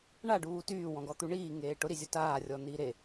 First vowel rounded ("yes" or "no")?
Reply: no